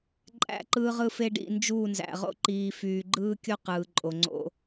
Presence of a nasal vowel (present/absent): absent